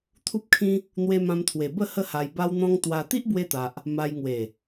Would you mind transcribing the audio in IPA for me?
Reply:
t̪ʰ u˦ p̚ kʰ ĩ˦ | n̪ w e˧ m ã˧ m t̪ʰ w e˨˩ b ə˥˧ h ə˦ h a˧ j b a˦ w n̪ ɔ̃˦ ŋ t̪ w a˧ t̪ i˦ ʔ b w e˧ t̪ a˨ ʔ | m a˧ j ŋ w e˨˩

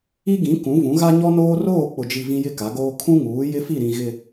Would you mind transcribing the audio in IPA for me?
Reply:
i˦ ɡ ĩ˨˦ k ũ˨˦ v ũ˨˦ ɣ a˦ ɲ ɔ˦ n oː˦ r oː˦˨ k͡p ʊ˨ d͡ʒ i˨ v ĩ˦ j ɪ˦ k a˨˦ ɡ oː˦ kʰ ũ˦ ŋ uː˨˦ j ɪ˦ f i˦˨ ɾ ĩ˨ ɣ ɪ˨

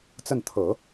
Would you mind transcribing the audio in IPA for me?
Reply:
t͡s ə˥˩ n t̪ʰ ɤ˨˩˦

